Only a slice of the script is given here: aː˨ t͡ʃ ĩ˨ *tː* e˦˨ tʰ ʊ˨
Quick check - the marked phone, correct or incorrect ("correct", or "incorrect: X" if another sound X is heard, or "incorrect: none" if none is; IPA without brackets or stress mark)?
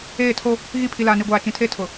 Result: incorrect: tʰ